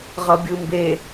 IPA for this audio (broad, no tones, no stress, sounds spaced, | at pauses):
ʁ ʌ bʲ ɯ m b e